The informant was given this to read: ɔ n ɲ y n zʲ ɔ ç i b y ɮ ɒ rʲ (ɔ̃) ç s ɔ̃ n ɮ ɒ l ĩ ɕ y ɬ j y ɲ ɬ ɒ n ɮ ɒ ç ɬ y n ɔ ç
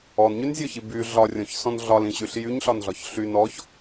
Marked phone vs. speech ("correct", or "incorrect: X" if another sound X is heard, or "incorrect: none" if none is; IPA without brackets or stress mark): correct